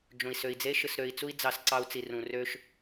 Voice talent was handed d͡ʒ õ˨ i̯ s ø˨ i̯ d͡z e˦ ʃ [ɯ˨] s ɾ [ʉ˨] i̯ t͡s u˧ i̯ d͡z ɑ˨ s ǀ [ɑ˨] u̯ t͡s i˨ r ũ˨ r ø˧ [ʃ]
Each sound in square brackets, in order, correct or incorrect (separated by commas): correct, incorrect, incorrect, correct